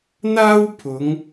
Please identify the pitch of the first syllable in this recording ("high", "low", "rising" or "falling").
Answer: high